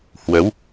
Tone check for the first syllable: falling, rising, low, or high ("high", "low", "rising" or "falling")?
rising